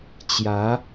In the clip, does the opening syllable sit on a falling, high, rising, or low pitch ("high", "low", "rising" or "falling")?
rising